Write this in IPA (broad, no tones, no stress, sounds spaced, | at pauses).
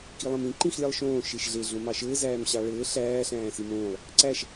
k i lˠ ĩ m ĩ ǃ ĩ x lʲ ɑ lˠ ʃ õː ʃ e ʃ ɮ e ɮ õ m ɑ ʃ ɘː z æː m ɕ ɑ ɭ ɘː ɬ æː ɬ æ̃ː s i m õː lˠ | ǀ æ ʃ